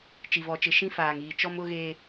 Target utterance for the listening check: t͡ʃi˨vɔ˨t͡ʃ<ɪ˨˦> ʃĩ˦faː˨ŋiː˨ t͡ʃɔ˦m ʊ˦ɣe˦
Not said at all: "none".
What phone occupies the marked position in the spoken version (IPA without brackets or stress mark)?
ɪ˨